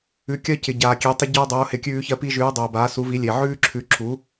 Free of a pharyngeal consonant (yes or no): no